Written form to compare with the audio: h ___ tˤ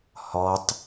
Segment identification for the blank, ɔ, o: ɔ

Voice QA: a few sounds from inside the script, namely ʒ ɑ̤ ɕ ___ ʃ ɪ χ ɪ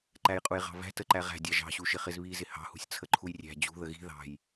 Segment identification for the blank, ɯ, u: u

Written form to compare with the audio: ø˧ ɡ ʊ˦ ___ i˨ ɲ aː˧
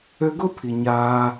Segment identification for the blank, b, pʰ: pʰ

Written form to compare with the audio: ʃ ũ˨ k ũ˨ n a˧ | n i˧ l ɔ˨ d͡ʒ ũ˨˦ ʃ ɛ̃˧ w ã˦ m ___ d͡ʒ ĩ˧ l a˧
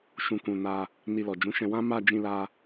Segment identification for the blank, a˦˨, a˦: a˦˨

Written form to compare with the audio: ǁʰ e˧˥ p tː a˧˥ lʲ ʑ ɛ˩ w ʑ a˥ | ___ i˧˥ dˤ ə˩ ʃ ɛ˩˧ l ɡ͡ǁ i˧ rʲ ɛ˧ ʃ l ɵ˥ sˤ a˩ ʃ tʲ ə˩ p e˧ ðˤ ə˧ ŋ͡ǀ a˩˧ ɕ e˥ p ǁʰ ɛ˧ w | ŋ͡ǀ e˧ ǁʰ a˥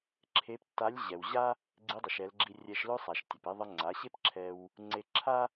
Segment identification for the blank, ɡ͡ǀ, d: ɡ͡ǀ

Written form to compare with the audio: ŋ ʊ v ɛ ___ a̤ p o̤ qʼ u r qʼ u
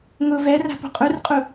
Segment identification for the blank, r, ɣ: r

